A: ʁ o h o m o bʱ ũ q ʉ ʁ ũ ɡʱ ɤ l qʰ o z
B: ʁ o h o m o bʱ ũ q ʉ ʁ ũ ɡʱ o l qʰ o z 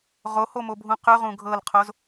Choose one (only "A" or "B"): A